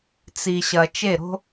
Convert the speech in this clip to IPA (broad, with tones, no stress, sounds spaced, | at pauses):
t͡s i˨ ɕ ɐ˨ t͡ʃ e˦˨ ɾ o̤˦